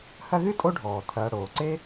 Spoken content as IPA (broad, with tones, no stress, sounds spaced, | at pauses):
h ɐ˦ ɣ ɨ˥ tʼ o˦ ɖʱ ɔː˩ tʰ ɐː˨ ɽ oː˩ ǀ e˥